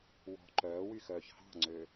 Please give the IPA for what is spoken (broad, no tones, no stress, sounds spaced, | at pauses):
w ɔ̤ ǃ œː w y x œː ç h ɑ̤ ŋ͡ǀ ø